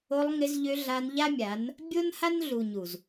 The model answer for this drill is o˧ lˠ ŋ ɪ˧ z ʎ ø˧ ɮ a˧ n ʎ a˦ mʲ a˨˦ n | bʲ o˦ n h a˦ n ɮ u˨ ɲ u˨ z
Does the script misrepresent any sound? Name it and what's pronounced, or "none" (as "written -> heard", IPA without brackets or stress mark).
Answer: none